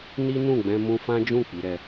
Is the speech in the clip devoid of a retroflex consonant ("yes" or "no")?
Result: yes